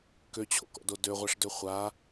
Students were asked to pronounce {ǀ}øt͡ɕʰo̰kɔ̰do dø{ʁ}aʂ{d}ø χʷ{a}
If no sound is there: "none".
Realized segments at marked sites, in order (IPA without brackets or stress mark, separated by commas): k, ʁʷ, d, a